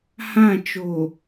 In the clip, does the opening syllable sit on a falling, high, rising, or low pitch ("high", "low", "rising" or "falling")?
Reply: falling